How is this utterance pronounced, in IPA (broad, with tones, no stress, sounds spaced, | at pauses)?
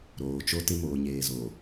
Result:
ɾ oː˨ t͡ʃ o˦ t ɪ˦ m oː˨ ɲ eː˨ z oː˨